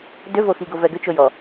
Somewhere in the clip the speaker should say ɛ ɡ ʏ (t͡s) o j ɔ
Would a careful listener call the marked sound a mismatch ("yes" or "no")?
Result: yes